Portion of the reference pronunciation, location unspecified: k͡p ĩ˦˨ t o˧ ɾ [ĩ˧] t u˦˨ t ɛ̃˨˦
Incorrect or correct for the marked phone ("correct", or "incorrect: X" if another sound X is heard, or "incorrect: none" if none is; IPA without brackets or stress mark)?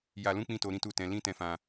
incorrect: ĩ˦